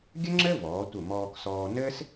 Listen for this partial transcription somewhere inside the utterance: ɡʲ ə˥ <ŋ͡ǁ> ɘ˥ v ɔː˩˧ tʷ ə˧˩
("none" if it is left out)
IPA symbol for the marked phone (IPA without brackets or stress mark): ŋ͡ǁ